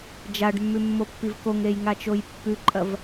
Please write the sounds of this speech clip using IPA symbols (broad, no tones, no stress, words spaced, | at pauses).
d͡ʒaɖmːʉmːopːiv koŋɾejŋat͡ʃoj pːʉǃʼɐv